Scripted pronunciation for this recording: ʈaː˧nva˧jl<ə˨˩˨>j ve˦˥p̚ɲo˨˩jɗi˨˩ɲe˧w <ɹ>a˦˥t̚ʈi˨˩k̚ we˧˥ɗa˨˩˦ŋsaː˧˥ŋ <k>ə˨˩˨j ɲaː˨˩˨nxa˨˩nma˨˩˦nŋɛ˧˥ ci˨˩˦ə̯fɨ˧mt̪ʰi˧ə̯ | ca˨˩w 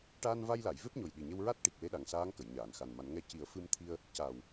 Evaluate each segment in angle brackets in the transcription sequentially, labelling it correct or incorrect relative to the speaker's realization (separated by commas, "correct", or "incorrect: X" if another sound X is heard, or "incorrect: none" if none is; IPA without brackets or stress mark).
incorrect: a˨˩˨, correct, correct